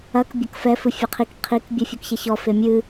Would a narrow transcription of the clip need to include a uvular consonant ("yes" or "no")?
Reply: yes